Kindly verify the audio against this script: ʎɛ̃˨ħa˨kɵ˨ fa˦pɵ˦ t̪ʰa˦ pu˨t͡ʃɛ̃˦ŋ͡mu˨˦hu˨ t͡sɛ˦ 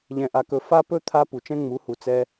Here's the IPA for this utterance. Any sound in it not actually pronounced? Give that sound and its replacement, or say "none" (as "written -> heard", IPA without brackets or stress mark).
ħ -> ʔ